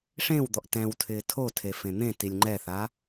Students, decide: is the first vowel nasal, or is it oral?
nasal